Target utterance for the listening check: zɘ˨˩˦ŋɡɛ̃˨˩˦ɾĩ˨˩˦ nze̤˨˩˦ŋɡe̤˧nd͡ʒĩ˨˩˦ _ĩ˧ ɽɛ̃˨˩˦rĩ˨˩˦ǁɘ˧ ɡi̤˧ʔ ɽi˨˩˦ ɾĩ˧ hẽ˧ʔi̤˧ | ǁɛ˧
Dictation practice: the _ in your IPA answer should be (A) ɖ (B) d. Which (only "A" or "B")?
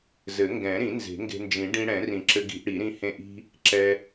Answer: A